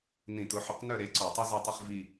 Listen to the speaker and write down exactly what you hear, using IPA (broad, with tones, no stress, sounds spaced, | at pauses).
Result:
n ĩ˧˩˧ t ʊ˩˥ ħ ʊ˧˩˧ q n œ˦˨ ɾ e˩˥ ǀ ɔ˧˩˧ tˤ i˥ z e˦˨ tˤ i˦˨ χ v i˦˨